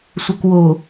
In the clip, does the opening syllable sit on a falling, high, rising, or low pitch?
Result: low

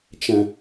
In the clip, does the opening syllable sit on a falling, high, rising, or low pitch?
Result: low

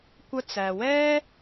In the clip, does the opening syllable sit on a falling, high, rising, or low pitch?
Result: high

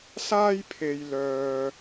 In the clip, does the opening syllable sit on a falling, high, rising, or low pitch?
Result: high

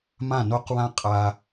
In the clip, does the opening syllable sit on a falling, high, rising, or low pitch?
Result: falling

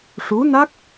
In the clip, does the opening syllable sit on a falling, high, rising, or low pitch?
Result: rising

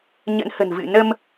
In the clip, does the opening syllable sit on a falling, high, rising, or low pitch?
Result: rising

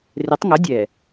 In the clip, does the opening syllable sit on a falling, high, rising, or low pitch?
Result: rising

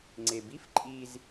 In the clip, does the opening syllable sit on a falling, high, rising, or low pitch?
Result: low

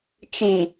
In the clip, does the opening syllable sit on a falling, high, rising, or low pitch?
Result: low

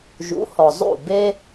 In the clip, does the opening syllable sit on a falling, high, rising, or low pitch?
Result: rising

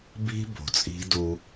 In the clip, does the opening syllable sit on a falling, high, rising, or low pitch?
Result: high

